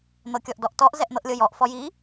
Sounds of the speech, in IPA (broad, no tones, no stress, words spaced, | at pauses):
n̪ɤkʲɔʔdɔʔtɔʔ zɛʔn̪ɤʔlʲɤjɔʔ fɔji